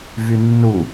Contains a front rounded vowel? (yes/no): yes